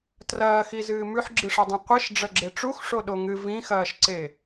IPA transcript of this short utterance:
trɐːxizɨː mʉħɡ͡ǁɨʂɐdˤẽ qʷiʃ ɖ͡ʐɐɡ͡ǁeʈ͡ʂux ʂoɗoŋɨ vĩxɐːʃǀe

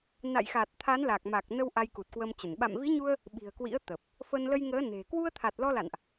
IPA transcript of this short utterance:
na̰˧˨jxa˨˩t̚ t̪ʰa˨˦nla˨˩k̚ ma˨˩k̚nə˧w ʔa˧jku˨˩t̚kwə˧mt͡ɕə˧˩n ɓa̰˧˨mvi˨˦ɲu˧ə̯ | ɓi̤˨˩ə̯kwḭ˧˥ə̯t̪əː˨˩p̚ | fə˧n lə˧j ŋəː˨˦ne̤˨˩ kwu˧ə̯t̪ʰa˨˩t̚lɔ˧la̰˧˨nʔ

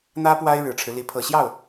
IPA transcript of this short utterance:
n̪ä˥ pwa˥ɪ̯ ɻɻ̩˨˩ʈ͡ʂʰɻ̩˦li˧˥ pʰɤ˨˩ɕjɑ˥˩ʊ̯

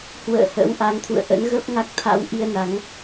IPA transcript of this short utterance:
hwə̰ː˧˨hə̰˧˥wʔa˨˦ŋ t̪ʰṵ˧˨ə̯ ʔə̰˧˥nɣə˦˥p̚ ŋa˦˥k̚t̪ʰa̰˧˥wʔi˧ə̯ na˨˦ŋ

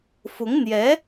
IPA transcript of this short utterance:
fʊ˧˥ŋn̪jɛ˧˥

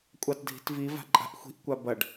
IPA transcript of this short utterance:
kʷʼɑtdʱi̤tvi va̤ǃʼa̤ʔxʷi̤ʔ kʷabɐɖ

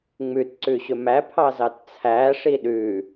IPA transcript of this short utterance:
ŋ͡mʉtǀʉ ɕɵmæpʰɑ zɑtt͡sʰæʂi ɗʉ

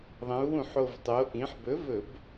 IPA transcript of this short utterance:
ðˤɐ̃˩˧u̯wũ˧˩˧ħo˨˩vtˤo˩˧ ʔĩ˩˧ħbɵ˨˥vɵ˧˩˧b

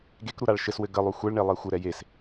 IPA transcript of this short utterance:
ɡekɾuɾaɭ ʃɘswɘ ɡəlˠu xʷɛɭɳelˠe xʷəɾɛ jes

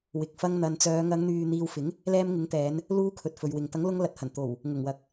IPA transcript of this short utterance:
wɪ˨k̚ fɐ˧ŋn̪ɐ˨nt͡sœː˨˧ ŋɐ˨˧ŋn̪yː˨ n̪iː˧w fɪ˨˥ŋ | lɛː˧mŋɪ˨˥ŋt̪ɛː˨˧n | luː˧ kʰɵ˨t̚fɵ˨ɥwɪ˨ŋ t̪ɐ˨˥ŋlʊ˧ŋlɐ˨t̚hɐ˨˩n t̪o˨˩w | ŋʊ˨˩ŋwɐ˨˥k̚

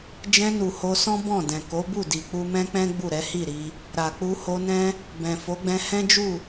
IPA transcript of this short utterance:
d͡ʒɛ̃˧nu˨ ho˧sɔ̃˦ bɔ̃˦˨dɛ̃˨ ko˨˦bu˦˨di˨ k͡pu˧mɛ̃˦k͡pɛ̃˦ ɡ͡bu˦˨ɾɛ˨˦ hi˦˨ɾi˧ | ɾa˨k͡pu˧ho˧nɛ̃˦ | bɛ̃˨fo˨˦ɡ͡bɛ̃˧ hɛ̃˦d͡ʒu˦˨

